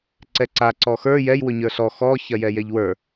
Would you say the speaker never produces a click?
no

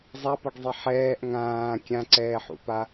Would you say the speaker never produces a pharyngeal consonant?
no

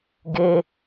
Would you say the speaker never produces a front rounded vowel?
yes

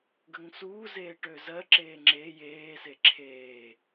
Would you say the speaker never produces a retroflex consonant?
no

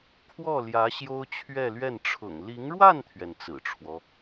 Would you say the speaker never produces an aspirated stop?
no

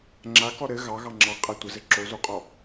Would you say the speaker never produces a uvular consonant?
no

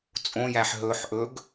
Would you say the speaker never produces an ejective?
no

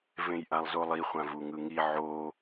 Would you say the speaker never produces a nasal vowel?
no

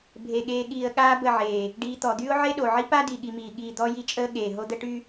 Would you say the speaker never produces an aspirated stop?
yes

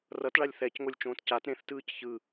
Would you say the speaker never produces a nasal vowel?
no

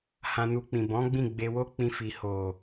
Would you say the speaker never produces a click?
yes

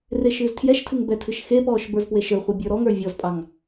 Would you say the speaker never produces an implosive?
yes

